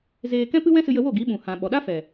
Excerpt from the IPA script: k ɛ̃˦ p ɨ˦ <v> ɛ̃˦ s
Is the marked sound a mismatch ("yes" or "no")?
yes